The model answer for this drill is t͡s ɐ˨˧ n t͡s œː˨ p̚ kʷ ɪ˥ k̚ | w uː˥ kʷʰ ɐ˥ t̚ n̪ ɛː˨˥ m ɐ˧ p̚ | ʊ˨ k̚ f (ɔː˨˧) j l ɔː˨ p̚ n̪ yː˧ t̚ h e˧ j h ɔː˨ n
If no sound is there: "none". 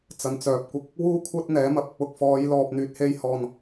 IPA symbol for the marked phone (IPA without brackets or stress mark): ɔː˨˧